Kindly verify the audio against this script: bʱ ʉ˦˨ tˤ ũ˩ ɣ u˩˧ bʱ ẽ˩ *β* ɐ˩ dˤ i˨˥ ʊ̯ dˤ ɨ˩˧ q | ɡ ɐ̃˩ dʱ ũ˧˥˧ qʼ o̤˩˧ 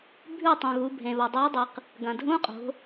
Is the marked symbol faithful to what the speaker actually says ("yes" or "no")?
yes